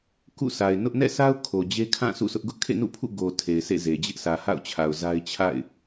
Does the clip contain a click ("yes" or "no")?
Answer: no